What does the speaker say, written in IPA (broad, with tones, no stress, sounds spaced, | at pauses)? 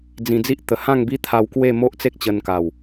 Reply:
d͡z ĩ˧ d͡z i˦ ʔ t̪ ə˨˩ h ã˥˧ ŋ b i˦ t̪ʰ a˧ w k w e˥˧ m o˦ ʔ t͡s e˦ k̚ t͡ɕ ə˧ n k a˨˩ w